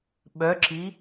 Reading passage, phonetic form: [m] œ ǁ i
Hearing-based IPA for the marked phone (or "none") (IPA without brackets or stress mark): ɓ